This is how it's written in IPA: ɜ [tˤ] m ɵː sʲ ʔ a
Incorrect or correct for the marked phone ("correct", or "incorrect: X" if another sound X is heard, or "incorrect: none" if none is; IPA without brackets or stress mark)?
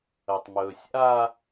correct